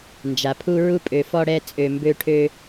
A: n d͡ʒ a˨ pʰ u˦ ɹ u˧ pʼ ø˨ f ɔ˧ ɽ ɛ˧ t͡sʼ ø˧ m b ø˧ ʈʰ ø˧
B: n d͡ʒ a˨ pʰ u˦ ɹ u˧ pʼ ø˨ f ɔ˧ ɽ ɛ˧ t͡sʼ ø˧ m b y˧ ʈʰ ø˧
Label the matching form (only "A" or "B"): A